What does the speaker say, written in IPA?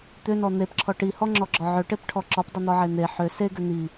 t̪ ʏ n ɔ n̪ e p ǁʰ ɔ ʈ i h ɔ ŋ͡ǁ ɔ ɡ͡ǁ ɔ ʕ ʏ ʈ e p ʈʰ ɔ ǁ ɔ p dˤ i n̪ ɔ ʕ e n̪ e ħ ʏ s e ɡ ʏ n̪ i

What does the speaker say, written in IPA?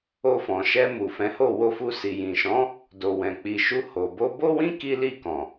o˧ f ɔ̃˨ ʃ ɛ˧ m u˨ f ɛ̃˨˦ h o˦˨ w o˧ f u˧ s i˨ j ĩ˨ ʃ ɔ̃˨˦ | d o˨ w ɛ̃˨ k͡p i˨ ʃ u˧ h o˨ b o˧ b o˦ w ĩ˦ k i˦ l i˦˨ k ɔ̃˨

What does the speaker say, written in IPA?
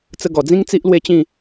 t͡s ə˧ ɡ ɔ˨˩ d͡z ĩ˦ ŋ t͡s i˦ ʔ l w e˦ t͡ɕ ĩ˥˧

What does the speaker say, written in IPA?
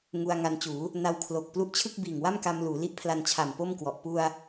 ŋ u˧ a̯ ŋ a˧ n t͡ɕ uː˩˦ | n a˧ w kʰ l o˨˩ k̚ p l u˦˥ ʔ t͡ɕʰ ɯ˥˩ k̚ b iː˨˩ ŋ w a˥˩ m k a˧ m l uː˩˦ l i˦˥ ʔ pʰ l a˧ n t͡ɕʰ a˨˩ m p o˥˩ m k w ɔ˨˩ ʔ p u˧ a̯

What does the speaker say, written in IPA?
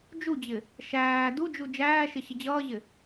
d͡ʒ u d͡ʑ ɪ | ʃ æː d u d͡ʒ u d͡ʒ æː ʃ ɪ ɕ ɪ d͡ʑ ʌː ʑ ɪ

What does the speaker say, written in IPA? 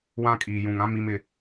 w ã˦ kʼ iː˨ j ũ˨ ŋ ã˦ m i˦ m ɪ˦

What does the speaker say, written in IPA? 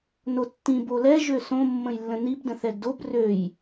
n o tː ĩ b o l ɛ ʒ ø s õ mː ə̃ j lː ə̃ n i b d ə̃ θ ɛ ɡ d o b r ø j

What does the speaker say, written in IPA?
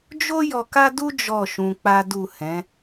d͡ʒ o˦ j ɔ˧ k a˦ d u˦ d͡ʒ ɔ˦˨ ʃ ũ˧ k͡p a˦ d u˦˨ h ɛ̃˨˦

